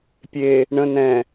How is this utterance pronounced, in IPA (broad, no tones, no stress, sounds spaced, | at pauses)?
pʲ e | ɳ ə̃ n ɛ̃